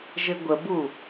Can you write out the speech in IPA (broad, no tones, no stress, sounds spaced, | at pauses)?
ʒ ɘ ɡʷ ə b u